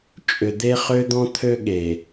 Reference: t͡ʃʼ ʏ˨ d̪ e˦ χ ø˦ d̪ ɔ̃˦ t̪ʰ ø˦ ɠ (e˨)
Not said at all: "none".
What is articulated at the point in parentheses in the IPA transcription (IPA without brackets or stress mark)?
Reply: e˨